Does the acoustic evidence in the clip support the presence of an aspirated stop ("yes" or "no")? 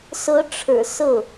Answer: yes